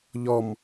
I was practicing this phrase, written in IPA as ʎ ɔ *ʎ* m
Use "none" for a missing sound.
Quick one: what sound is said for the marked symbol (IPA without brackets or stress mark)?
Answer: none